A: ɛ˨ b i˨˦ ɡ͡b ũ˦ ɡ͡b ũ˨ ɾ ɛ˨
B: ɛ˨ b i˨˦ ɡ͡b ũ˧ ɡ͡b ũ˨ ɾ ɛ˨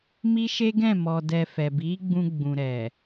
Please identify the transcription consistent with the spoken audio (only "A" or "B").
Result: B